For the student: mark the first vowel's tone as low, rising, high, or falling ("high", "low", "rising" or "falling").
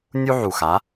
high